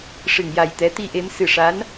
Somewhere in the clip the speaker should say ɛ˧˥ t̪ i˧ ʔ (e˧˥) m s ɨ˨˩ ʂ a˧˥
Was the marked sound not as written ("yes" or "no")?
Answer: no